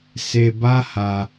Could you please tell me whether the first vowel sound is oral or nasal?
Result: oral